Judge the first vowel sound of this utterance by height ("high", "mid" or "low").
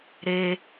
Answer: mid